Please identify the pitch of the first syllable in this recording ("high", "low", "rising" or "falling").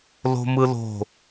high